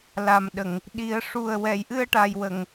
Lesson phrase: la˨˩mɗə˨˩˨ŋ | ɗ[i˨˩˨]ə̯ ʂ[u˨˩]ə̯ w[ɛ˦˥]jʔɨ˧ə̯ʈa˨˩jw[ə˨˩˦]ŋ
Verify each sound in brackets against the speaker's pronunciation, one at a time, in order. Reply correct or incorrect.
incorrect, correct, incorrect, incorrect

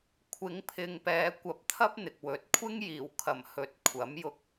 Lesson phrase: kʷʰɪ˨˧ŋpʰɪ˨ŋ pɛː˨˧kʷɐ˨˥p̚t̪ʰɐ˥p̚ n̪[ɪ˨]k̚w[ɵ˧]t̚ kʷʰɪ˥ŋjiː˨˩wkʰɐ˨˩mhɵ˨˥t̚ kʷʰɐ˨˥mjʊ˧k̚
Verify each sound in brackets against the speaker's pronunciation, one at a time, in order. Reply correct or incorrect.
correct, incorrect

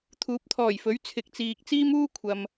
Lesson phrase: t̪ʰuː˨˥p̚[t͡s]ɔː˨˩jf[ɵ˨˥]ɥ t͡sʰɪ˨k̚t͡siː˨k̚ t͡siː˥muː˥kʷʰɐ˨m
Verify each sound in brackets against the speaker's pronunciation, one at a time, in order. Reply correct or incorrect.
incorrect, correct

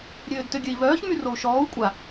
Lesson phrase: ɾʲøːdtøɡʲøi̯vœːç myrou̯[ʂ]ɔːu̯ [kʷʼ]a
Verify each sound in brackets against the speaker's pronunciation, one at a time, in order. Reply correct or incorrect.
incorrect, correct

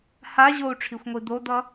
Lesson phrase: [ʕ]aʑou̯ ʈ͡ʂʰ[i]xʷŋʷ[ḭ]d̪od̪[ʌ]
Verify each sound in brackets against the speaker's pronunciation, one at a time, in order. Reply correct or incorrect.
incorrect, correct, incorrect, correct

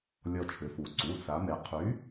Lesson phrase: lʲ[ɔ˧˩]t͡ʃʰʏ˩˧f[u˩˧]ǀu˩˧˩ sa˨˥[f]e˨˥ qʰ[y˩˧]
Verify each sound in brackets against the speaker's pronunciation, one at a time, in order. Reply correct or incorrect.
correct, correct, incorrect, incorrect

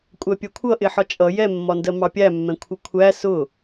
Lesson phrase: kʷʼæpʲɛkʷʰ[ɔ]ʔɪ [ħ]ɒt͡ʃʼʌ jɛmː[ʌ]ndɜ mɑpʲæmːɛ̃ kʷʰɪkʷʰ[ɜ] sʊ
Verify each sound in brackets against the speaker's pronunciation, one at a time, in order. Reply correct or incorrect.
incorrect, correct, incorrect, incorrect

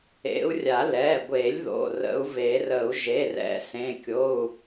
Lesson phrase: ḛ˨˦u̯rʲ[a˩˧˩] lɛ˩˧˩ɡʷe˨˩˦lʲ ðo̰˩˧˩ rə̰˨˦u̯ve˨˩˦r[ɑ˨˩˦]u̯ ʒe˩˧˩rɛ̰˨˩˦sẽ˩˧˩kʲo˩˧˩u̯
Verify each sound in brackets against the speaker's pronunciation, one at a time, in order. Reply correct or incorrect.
incorrect, incorrect

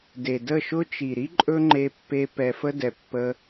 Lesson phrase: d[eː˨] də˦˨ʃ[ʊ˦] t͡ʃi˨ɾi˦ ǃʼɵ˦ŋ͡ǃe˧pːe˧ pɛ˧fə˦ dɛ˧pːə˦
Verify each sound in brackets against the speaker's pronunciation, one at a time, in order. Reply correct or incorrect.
incorrect, correct

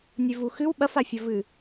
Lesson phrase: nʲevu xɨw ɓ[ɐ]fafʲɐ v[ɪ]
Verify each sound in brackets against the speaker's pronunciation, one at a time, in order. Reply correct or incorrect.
correct, incorrect

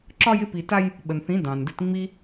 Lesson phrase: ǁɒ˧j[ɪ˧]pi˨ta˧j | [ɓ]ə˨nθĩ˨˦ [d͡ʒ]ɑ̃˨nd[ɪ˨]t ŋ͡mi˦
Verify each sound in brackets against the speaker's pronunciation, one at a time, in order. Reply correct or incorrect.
correct, correct, incorrect, incorrect

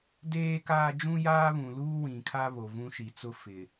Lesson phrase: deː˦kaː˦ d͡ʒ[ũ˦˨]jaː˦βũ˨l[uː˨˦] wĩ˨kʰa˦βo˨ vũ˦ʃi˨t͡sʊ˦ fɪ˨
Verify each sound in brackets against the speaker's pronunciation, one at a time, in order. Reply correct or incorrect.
incorrect, incorrect

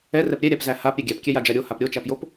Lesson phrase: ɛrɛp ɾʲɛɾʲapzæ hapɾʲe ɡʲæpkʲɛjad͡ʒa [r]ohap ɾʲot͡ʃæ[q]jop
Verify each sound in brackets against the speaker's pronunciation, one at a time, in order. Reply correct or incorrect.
incorrect, incorrect

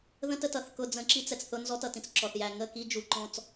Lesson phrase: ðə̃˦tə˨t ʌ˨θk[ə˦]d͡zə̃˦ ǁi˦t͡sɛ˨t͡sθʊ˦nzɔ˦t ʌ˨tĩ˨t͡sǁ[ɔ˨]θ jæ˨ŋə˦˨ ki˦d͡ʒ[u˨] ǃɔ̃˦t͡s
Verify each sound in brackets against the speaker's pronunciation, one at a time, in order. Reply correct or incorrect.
incorrect, correct, correct

